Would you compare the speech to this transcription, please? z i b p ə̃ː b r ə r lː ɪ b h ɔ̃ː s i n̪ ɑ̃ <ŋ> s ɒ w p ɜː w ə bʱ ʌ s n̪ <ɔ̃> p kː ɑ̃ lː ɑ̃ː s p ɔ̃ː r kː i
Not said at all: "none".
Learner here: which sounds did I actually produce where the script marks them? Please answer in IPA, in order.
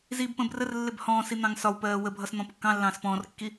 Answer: ŋ, ɔ̃

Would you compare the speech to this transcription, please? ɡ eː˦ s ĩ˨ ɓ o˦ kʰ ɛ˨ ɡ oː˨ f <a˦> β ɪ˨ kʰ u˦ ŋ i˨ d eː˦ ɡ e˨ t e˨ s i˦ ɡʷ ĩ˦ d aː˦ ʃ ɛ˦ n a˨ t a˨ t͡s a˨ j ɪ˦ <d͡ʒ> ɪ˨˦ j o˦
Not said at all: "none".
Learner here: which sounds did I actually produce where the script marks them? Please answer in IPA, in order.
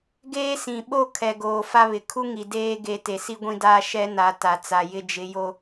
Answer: a˦, d͡ʒ

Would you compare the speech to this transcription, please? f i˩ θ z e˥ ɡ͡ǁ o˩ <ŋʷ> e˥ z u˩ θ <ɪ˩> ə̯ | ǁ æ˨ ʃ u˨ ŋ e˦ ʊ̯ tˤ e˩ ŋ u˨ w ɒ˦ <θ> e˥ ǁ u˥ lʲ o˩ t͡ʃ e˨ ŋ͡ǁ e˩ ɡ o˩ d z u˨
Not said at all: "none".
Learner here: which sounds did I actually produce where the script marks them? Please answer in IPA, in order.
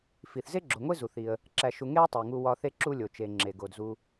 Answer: ŋʷ, i˩, θ

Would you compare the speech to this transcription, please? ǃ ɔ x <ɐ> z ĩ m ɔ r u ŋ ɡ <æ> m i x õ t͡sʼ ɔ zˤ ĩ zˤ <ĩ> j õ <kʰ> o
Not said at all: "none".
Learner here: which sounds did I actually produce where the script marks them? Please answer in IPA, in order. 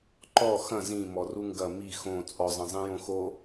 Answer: ɐ̃, ɐ, ĩ, x

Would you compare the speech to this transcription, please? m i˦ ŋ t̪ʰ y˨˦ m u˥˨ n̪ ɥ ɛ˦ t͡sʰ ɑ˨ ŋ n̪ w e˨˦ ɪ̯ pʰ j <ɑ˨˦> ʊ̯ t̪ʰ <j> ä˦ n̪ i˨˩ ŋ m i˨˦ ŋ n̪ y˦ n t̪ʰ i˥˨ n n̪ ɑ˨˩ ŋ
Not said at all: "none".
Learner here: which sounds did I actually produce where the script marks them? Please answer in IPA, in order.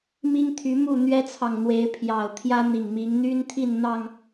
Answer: ɑ˨˩, j

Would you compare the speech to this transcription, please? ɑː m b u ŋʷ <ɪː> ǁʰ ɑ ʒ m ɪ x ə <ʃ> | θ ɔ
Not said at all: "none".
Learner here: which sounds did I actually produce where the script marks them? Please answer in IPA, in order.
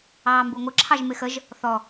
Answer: ɪ, ʒ

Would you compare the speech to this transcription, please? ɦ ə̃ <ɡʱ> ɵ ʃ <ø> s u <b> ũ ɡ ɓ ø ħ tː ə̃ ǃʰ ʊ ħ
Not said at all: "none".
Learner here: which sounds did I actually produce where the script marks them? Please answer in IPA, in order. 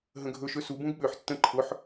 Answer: ɡʱ, ø, b

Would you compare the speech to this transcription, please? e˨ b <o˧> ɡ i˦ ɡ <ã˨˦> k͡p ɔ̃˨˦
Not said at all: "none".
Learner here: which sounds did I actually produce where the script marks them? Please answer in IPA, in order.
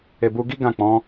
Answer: u˧, ã˦˨

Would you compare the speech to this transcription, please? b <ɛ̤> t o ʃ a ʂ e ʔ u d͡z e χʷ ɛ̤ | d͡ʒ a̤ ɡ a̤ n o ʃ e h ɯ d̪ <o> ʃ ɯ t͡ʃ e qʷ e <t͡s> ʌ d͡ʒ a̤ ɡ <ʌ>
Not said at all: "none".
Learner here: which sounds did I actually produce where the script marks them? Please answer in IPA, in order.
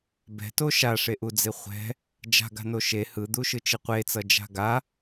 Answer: ɛ̤, u, t͡s, a

